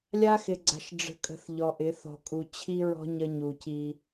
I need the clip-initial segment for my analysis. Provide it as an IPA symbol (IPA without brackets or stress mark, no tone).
lʲ